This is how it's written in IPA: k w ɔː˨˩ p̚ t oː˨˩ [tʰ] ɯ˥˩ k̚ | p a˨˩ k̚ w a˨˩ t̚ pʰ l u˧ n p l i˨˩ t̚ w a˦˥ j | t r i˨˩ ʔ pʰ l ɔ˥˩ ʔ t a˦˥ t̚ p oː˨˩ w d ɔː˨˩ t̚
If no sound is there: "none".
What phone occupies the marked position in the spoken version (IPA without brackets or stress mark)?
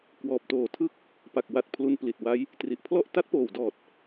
tʰ